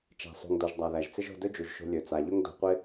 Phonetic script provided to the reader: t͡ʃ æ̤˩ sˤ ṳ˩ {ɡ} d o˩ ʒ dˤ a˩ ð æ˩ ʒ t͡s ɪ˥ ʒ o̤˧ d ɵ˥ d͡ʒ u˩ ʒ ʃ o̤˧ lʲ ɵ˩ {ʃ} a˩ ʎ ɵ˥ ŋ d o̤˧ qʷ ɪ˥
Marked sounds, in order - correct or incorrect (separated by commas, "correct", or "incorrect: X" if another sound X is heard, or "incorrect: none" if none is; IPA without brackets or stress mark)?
incorrect: ŋ, incorrect: t͡s